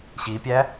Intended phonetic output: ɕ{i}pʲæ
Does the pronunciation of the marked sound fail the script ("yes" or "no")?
no